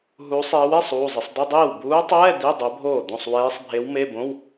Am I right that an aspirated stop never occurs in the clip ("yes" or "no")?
yes